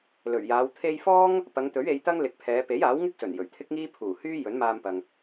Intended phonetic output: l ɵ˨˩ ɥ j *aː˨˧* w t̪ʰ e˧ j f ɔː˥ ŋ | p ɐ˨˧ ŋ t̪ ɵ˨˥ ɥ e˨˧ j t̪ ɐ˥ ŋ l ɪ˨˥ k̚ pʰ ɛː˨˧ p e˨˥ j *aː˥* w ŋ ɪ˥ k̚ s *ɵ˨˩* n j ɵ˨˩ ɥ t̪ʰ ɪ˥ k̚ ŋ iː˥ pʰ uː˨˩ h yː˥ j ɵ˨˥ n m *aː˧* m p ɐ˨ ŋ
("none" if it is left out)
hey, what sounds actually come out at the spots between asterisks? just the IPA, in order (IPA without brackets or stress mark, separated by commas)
aː˨˧, aː˨˥, ɵ˨˩, aː˧